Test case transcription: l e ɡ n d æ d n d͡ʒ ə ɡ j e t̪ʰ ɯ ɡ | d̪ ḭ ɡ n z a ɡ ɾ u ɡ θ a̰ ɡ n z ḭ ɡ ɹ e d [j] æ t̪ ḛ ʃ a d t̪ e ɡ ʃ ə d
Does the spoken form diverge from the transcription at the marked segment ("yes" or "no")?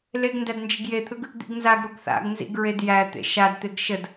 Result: no